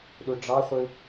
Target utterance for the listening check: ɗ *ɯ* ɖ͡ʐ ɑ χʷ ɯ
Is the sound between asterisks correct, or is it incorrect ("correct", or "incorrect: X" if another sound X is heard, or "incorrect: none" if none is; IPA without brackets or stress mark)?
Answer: incorrect: u